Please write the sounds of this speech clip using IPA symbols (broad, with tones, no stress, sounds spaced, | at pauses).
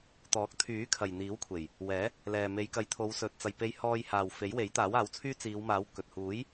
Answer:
t̪ ɔː˨˥ k̚ t̪ʰ yː˨˥ kʰ ɐ˨ j n̪ iː˨˥ w kʷʰ e˨˩ j | w ɛː˨˥ | l ɛː˨ m e˨˧ j k ɐ˨˧ j t̪ʰ o˨˧ w s ɵ˨ t̚ t͡s ɐ˨ j p e˧ j h ɔː˧ j h aː˨ w f e˨˥ j w e˨˥ j t̪ aː˨˥ w aː˨˥ w t͡sʰ yː˥ t͡s iː˨˧ w m aː˨˥ w k ɵ˨ t̚ h uː˨˥ j